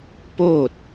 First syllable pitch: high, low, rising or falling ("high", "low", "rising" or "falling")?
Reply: falling